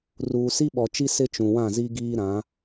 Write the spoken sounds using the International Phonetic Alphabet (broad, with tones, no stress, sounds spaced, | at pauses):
r uː˨ s i˦ ɓ ɔ˨ t͡ʃ i˦ s ɪ˦ t͡ʃ ũ˨ w ã˦˨ z i˦ ɡ iː˦ ɾ ã˨˦